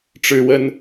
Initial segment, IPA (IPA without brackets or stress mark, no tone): ʈ͡ʂ